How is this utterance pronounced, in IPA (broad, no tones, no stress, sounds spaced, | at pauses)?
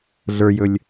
ɮ ə˞ j ɵ lʲ